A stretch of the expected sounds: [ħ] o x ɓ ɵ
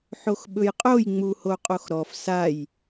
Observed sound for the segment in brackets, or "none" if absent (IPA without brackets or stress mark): ħ